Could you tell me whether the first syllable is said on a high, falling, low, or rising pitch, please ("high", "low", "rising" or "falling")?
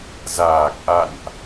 low